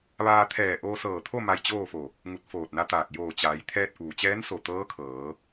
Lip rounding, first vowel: unrounded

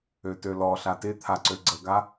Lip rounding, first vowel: rounded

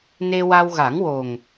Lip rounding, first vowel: unrounded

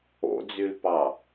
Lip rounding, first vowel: rounded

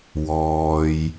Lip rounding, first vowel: rounded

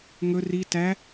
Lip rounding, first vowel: rounded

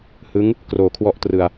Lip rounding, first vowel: unrounded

